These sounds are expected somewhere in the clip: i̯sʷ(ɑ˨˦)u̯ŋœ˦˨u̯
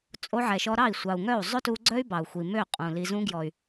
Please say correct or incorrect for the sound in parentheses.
incorrect